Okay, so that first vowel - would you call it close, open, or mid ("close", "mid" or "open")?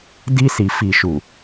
close